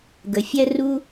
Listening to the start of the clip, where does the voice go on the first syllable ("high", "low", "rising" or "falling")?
low